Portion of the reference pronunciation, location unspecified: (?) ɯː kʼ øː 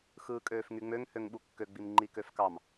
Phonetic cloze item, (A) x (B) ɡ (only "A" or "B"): A